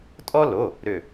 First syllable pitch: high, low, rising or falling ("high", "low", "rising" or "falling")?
high